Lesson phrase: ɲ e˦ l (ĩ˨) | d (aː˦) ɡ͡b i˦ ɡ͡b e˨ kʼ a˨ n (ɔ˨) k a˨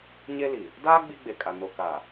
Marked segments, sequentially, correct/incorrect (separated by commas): incorrect, correct, incorrect